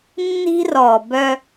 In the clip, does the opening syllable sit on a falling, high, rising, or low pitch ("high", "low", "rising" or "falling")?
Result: high